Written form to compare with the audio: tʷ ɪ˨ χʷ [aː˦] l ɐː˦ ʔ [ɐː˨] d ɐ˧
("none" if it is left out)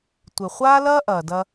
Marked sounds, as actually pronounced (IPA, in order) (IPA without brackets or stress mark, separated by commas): aː˦, ɐː˨